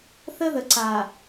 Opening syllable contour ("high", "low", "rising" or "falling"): high